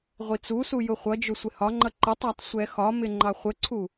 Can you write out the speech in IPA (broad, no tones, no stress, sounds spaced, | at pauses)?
ʁʷ i t͡s u s u j ʊ χʷ ʌ d͡ʒ ʊ sʷ ɪ h ɒ ŋ͡ǃ ʌ ǃ ɪ tˤ æ tˤ sʷ ɛ x ɒ m ɪ ŋ͡ǃ ɑ χʷ ə ǀʰ u